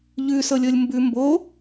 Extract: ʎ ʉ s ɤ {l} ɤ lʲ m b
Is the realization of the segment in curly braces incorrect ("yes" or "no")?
yes